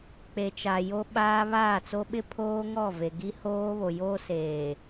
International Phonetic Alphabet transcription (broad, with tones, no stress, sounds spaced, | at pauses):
k͡p e˨ t͡ʃ a˨ j o˦ ɓ aː˦ β aː˦˨ t͡s o˦ ɓ ɪ˦ pʰ oː˦ ŋ ɔ˦˨ v e˨ ɡ i˦ h oː˦ β o˨ j oː˦ s eː˨